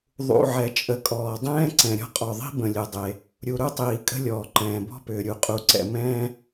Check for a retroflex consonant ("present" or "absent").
absent